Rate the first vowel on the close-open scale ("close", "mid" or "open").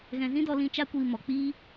mid